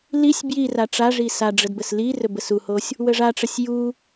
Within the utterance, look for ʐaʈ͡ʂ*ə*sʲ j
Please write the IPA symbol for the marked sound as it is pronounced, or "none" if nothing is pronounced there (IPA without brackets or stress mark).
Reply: ə